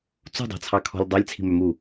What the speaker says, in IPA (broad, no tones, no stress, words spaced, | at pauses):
t͡sṳdˤɑ̤t͡sʰɑkʰɔ̤lʲ dˤɑlʲt͡sʰi̤mœmu